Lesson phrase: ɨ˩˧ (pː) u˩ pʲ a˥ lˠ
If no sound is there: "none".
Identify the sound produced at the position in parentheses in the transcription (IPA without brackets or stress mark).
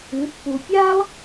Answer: pː